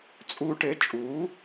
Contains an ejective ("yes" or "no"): yes